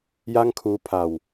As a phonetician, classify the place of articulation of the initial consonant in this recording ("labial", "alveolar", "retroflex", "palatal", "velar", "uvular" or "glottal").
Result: palatal